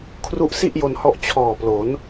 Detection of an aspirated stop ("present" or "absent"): present